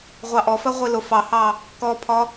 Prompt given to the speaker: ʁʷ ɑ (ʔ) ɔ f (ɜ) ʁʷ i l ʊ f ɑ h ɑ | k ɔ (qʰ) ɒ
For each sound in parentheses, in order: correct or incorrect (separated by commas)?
correct, correct, incorrect